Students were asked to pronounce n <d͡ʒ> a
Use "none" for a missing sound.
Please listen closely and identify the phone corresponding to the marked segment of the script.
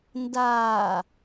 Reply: d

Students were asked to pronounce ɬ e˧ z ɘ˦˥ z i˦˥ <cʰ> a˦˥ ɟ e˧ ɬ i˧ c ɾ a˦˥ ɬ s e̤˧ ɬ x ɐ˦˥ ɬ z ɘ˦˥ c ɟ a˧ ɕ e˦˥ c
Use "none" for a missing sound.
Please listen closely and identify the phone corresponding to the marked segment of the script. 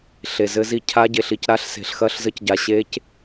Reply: cʰ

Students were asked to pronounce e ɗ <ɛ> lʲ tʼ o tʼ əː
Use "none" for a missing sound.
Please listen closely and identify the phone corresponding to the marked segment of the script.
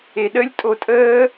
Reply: ə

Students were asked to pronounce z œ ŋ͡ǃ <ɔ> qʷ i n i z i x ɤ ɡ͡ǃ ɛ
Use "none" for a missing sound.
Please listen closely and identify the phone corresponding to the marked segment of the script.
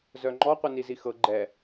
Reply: ɔ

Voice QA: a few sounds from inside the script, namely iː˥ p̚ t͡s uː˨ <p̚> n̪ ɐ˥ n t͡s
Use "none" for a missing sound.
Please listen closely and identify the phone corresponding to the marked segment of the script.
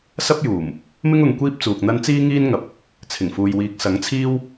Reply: k̚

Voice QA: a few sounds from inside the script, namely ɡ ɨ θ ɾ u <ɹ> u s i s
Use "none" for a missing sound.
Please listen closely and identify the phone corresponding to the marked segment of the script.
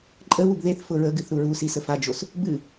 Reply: ɹ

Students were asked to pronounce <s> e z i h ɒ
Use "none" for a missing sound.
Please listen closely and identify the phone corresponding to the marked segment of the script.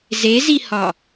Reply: z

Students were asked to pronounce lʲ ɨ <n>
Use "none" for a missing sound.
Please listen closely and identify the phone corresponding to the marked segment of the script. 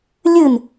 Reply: n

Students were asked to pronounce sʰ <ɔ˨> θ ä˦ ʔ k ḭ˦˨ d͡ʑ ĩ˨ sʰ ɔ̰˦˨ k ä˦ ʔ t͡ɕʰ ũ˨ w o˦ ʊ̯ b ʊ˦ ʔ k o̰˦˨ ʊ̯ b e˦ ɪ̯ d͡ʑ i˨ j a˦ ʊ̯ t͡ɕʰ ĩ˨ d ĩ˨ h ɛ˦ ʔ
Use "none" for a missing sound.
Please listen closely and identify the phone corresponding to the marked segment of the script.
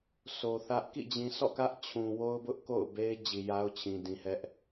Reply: o˨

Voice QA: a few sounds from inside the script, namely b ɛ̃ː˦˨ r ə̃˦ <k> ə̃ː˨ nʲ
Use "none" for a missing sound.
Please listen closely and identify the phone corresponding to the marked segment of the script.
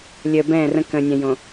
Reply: k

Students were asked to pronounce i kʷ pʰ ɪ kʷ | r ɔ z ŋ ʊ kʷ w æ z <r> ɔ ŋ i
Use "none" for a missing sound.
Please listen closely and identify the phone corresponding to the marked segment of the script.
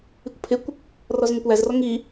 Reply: r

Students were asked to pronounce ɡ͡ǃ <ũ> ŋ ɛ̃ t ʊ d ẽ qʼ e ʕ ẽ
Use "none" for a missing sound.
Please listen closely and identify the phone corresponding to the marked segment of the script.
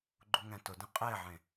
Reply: u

